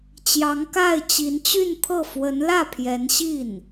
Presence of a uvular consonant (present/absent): absent